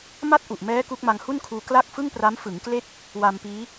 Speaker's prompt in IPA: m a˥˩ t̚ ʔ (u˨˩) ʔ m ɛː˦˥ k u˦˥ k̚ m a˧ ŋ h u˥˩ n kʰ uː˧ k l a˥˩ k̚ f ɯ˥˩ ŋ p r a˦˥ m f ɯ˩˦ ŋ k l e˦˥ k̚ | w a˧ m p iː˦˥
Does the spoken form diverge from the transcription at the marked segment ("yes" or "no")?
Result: no